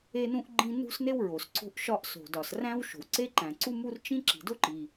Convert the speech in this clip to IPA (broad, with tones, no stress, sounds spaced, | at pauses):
e˥ n ũ˥ ʔ ɡ͡ǃ ĩ˥ n ṳ˥ s n e˥ w ɹ o˩ s ǀ o̤˥ ʔ ʃ ɒ˥ ʔ s o̤˩ d ɒ˩ s r æ̃˥ w ʃ o̤˩ w ǀ e˥ ǃ æ̃˩ ǀ u˥ m u˥ r t͡ʃ ĩ˥ ǁ i̤˩ d o˥ ǃ i˩